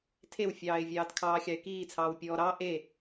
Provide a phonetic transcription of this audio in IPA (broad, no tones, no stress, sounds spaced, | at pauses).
tʰ e w fʲ ɑː ɪ̯ vʲ ɑː t kʰ ɑː xʲ ɑ ɪ̯ k iː t͡sʰ ɑː w pʲ ɔː ɾ ɑ ʔ e